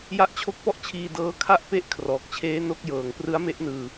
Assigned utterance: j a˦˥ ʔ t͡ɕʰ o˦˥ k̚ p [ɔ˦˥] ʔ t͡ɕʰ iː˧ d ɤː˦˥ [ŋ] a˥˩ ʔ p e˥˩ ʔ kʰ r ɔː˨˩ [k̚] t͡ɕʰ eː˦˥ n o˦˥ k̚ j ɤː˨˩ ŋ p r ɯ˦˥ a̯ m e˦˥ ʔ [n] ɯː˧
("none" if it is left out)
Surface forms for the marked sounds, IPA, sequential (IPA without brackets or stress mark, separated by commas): ɔ˦˥, kʰ, k̚, n